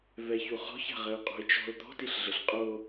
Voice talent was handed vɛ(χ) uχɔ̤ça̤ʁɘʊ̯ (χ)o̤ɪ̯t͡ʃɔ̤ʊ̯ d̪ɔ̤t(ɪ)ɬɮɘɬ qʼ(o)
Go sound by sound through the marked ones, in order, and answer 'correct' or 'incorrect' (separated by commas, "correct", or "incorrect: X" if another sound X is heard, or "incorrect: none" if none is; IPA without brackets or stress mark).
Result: incorrect: ç, incorrect: qʼ, incorrect: i, correct